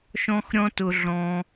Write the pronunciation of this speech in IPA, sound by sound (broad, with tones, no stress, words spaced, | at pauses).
ʃɔ̃˦xɾʲɔ̃˦tʊ˧ ɮɔ̃˧